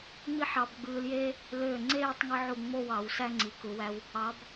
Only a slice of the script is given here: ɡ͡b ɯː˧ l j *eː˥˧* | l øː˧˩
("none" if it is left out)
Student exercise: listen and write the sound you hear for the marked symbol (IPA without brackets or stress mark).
eː˥